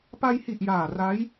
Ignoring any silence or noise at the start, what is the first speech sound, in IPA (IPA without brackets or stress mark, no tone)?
p